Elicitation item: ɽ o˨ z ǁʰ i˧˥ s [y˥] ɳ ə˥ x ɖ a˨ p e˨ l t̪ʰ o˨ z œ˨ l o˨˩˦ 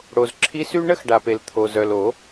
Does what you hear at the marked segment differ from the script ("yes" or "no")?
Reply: no